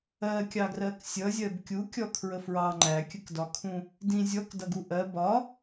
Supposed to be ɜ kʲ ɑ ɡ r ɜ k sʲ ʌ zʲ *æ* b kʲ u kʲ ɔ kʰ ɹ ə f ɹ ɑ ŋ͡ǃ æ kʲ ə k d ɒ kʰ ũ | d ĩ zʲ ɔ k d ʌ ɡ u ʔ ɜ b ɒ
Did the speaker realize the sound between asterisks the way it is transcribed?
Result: no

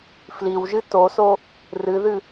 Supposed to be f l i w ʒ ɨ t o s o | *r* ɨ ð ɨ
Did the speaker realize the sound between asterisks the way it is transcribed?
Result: yes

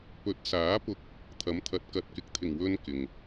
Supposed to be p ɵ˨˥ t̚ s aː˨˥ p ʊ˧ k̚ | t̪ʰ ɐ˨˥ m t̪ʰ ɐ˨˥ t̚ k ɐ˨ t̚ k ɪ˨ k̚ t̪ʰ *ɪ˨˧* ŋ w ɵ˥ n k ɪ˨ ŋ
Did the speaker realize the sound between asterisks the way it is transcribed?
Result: no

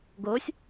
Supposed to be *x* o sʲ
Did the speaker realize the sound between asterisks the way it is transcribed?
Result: no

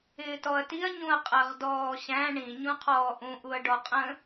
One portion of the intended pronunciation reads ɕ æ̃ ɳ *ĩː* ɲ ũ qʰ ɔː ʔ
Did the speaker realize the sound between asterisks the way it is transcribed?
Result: no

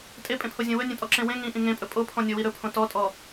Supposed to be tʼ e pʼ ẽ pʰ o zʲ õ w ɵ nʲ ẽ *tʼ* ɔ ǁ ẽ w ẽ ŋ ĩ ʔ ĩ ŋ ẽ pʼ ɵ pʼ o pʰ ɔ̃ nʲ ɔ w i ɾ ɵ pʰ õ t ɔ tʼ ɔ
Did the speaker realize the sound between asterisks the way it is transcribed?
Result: yes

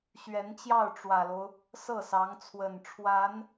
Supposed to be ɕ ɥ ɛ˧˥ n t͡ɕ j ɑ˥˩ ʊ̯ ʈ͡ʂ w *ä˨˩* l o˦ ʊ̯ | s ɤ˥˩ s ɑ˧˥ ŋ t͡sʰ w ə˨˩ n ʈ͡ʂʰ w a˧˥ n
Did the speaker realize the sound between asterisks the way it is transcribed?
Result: yes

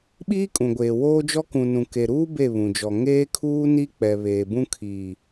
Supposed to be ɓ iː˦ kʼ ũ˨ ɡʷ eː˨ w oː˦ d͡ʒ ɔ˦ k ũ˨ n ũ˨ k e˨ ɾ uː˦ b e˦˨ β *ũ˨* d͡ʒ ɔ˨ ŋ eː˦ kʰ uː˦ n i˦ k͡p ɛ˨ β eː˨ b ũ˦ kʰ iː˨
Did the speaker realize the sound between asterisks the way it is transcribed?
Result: yes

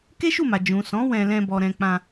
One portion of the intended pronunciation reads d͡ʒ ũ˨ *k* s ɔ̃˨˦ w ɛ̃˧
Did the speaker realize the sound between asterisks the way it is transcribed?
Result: no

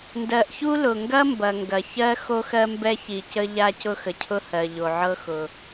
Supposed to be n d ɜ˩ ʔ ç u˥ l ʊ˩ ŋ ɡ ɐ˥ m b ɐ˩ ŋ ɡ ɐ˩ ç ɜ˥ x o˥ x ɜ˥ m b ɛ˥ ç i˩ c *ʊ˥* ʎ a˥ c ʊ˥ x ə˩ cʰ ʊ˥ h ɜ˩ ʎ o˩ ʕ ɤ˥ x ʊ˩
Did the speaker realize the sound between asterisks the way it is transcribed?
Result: no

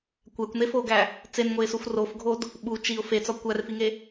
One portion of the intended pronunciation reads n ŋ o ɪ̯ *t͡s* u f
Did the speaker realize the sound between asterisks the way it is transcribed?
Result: no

